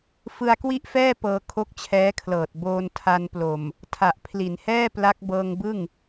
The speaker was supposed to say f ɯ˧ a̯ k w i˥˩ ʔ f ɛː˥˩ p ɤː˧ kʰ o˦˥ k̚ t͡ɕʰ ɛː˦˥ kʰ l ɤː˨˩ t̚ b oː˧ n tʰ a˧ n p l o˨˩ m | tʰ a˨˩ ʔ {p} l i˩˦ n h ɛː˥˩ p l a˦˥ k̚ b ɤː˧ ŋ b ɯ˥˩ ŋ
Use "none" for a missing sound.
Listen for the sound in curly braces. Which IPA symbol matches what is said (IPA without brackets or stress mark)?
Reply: pʰ